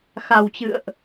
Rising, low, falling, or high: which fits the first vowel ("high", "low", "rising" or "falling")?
low